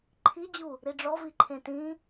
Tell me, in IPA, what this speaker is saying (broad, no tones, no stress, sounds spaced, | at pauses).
ǃʰ i d͡ʑ u | ɾ i ɖ͡ʐ ɔ v i ǃʰ ẽ t ĩ